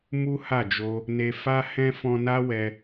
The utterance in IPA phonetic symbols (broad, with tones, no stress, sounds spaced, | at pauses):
m u˦ h a˦˨ d͡ʒ o˧ | n e˧ f a˦ h ɛ̃˦ f ɔ̃˧ n a˦ w ɛ˦